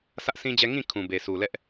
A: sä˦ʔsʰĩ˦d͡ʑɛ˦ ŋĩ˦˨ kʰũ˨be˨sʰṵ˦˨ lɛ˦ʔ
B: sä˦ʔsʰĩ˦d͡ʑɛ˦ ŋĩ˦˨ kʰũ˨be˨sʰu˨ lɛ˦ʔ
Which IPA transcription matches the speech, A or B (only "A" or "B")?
B